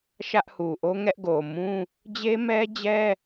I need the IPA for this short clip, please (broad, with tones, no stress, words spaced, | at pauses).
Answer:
ʃä˦ʔhu˨ ʔo˦ŋɛ˦ʔ ɡo˨mũ˦ | d͡ʑe˦mɛ˦d͡ʑɛ˦